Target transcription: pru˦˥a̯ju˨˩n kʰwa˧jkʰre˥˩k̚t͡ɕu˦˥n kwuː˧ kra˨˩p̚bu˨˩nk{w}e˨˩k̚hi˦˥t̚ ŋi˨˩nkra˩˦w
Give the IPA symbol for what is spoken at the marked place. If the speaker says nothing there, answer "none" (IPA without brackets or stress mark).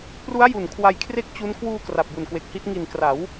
w